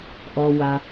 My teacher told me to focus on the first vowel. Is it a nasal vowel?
no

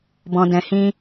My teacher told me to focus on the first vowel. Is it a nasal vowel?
yes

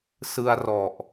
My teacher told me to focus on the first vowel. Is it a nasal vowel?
no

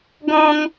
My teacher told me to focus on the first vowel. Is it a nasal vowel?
yes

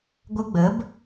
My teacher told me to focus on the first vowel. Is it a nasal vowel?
no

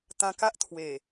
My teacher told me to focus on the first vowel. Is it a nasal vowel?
yes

